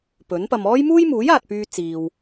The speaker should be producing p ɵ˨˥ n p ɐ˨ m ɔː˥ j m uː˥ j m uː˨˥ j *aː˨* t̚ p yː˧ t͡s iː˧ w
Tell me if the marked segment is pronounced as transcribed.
yes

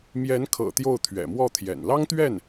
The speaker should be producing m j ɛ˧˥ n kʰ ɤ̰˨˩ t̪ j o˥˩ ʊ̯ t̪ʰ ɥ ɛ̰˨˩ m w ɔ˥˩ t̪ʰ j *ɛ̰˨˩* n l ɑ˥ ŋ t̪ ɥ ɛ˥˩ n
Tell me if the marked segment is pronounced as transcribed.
yes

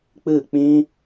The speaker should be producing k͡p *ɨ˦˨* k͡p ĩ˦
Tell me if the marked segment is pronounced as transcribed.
yes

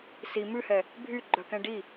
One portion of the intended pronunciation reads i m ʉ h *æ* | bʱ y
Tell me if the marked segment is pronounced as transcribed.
no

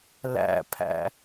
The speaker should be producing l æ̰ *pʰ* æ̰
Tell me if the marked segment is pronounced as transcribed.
yes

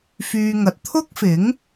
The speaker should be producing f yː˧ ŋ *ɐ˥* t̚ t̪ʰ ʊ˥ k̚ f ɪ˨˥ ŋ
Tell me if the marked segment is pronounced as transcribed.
no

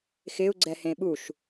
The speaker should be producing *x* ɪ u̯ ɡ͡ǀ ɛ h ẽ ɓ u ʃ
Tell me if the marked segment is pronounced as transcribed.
yes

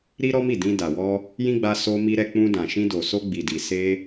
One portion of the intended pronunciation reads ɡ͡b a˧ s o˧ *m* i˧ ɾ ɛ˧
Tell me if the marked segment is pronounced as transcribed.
yes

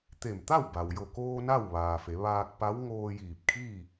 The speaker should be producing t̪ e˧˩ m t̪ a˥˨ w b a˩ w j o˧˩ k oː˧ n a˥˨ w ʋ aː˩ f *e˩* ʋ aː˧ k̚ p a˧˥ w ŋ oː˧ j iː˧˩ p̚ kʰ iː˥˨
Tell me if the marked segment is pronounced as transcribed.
no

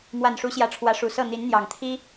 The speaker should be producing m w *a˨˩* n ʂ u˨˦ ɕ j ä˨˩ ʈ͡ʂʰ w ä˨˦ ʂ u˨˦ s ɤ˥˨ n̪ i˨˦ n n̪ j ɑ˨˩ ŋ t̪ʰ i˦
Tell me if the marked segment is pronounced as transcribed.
yes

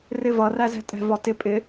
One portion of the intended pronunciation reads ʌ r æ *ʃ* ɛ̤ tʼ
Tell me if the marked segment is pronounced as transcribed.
no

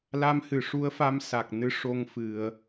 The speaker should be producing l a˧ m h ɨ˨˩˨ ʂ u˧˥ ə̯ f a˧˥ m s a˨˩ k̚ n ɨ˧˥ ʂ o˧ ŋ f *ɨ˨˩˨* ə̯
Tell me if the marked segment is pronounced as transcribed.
yes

